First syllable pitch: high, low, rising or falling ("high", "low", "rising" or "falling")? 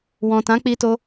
low